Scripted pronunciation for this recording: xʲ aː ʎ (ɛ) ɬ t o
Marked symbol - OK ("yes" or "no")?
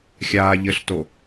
no